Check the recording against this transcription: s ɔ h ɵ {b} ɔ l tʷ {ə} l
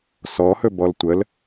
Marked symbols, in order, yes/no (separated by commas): yes, yes